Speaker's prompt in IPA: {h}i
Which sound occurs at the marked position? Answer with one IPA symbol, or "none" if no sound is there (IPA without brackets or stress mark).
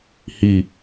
h